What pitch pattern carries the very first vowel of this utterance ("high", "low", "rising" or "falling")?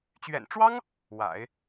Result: low